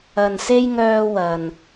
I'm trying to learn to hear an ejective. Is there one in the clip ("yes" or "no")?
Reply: no